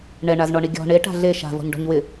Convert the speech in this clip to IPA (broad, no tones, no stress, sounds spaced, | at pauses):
ɳ ɛ ɳ a z ɳ ɔ ɳ i ɡʲ ɔ̤ ɳ e ʈ a̤ ɮ e ʃ a̤ v ɔ̤ ɲ ɖ ɔ̤ ɲ w ɪ